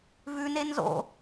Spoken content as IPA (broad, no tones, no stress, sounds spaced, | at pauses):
v ʉ n e n z o̰